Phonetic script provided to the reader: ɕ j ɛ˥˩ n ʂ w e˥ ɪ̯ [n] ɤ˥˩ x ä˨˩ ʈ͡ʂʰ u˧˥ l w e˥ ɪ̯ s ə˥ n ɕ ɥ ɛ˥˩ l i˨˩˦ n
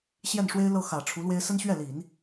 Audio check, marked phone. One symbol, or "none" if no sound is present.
l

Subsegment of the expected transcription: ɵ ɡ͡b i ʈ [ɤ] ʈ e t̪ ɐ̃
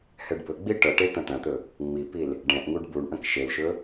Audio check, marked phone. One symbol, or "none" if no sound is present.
ɤ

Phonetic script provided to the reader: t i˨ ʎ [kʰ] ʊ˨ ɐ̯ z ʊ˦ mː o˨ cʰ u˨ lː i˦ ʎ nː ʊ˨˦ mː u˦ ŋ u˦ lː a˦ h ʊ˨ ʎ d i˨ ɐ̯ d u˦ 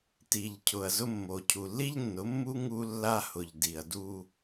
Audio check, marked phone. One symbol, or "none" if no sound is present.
cʰ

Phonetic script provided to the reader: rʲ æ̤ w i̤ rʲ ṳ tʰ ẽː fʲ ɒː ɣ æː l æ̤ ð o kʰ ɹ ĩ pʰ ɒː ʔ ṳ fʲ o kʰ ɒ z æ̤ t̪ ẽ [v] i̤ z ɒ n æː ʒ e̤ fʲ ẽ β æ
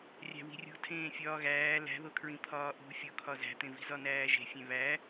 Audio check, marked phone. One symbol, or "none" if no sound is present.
v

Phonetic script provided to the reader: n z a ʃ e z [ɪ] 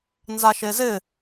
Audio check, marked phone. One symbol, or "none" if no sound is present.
ɪ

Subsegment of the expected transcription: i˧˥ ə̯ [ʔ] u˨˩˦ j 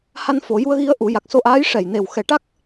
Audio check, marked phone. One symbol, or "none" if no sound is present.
ʔ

